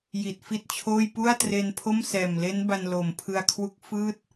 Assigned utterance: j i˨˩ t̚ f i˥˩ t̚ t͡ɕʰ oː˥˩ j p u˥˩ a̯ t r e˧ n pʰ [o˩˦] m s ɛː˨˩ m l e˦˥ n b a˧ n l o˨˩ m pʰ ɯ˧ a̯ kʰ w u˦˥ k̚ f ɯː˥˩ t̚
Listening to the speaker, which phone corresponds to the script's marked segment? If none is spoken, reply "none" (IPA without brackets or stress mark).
o˥˩